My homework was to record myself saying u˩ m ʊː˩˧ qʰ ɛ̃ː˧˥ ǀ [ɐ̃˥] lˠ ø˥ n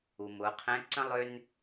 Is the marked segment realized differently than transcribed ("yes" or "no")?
yes